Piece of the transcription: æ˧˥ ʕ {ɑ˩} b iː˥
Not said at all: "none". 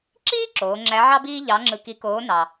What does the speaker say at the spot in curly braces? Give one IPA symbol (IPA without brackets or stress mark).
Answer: ɑ˥